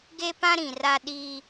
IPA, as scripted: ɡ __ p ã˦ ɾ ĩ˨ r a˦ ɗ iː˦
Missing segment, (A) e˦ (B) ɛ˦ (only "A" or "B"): A